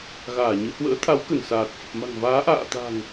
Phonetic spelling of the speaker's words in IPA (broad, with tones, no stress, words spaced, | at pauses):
ɣaː˧˩ɲɨ˨˦ hwə̰ː˧˥ t̪ʰa˨˦wkə˧˩nsaː˨˩t̚ fə˨˩p̚ma̤˨˩ŋvaː˨˦ ʔa̰ː˧˨t̪a̤˨˩ŋ